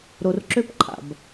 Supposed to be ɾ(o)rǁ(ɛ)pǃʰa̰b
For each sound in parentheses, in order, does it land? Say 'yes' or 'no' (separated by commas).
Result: yes, no